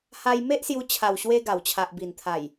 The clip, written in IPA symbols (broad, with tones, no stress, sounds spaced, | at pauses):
h a˧ j m e˦ ʔ s j u˧ t͡ɕʰ a˨˩ w ɕ w e˧ ɡ a˨˩ w t͡ɕʰ a˨ ʔ b i˨˩ n t̪ʰ a˨˩ j